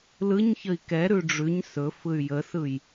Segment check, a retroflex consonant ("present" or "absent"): present